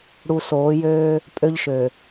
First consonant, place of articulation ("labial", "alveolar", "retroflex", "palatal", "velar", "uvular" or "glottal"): retroflex